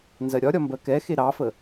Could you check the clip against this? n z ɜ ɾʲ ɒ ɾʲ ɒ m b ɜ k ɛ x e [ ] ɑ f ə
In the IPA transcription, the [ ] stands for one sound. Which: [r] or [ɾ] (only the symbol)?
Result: ɾ